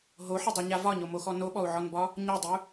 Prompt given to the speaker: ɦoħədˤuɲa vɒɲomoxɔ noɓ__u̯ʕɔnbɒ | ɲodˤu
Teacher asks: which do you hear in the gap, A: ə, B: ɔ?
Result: B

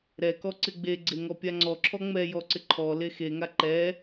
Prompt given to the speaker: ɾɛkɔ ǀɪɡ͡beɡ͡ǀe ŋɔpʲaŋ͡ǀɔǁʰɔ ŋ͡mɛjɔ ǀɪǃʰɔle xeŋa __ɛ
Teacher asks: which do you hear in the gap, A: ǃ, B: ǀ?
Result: A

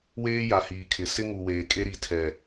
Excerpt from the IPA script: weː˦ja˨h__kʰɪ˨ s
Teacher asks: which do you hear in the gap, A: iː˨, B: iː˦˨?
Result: A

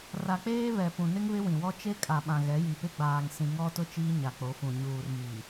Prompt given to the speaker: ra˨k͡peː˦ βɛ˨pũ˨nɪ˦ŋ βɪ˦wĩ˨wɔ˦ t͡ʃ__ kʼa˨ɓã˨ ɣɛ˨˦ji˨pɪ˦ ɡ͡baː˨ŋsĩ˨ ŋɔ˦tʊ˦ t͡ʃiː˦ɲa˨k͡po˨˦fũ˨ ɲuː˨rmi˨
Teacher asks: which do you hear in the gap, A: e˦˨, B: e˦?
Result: B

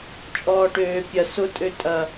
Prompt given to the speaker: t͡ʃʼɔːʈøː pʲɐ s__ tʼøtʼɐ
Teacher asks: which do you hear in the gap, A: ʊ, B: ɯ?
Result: A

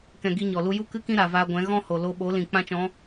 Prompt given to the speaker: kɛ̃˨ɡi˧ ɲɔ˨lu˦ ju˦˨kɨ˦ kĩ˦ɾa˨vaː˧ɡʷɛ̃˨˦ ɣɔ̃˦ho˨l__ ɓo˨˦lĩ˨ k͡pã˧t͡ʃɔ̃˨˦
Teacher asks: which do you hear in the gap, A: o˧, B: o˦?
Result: A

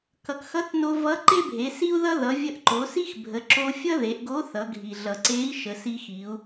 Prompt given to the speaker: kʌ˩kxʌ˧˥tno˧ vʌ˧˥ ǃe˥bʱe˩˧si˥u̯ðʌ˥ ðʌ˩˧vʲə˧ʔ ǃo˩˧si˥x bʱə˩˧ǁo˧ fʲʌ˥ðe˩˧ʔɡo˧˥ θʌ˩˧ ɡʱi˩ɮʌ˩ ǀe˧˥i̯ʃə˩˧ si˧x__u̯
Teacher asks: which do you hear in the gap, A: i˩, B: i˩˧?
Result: B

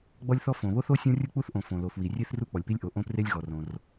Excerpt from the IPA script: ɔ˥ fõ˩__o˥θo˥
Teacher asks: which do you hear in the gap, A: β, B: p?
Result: A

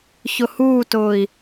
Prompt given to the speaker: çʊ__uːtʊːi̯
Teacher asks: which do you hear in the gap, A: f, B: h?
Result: B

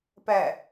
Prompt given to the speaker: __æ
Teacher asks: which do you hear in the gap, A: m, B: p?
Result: B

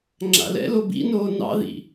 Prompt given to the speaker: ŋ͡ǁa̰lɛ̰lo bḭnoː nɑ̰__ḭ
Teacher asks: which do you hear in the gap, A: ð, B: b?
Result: A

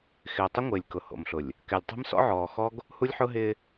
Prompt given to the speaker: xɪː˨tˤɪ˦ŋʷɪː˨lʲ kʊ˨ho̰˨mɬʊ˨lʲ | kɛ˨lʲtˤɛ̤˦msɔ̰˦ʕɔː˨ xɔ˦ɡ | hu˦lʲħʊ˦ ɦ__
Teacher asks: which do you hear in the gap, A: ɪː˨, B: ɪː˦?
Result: B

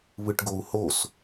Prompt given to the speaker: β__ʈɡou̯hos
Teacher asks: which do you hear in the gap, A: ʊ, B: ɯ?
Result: B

